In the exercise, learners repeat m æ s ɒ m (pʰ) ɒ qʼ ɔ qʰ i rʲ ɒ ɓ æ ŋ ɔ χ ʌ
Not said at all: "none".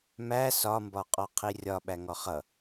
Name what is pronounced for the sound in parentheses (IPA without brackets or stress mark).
b